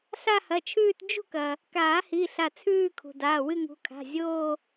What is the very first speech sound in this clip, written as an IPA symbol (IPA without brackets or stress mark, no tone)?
ɬ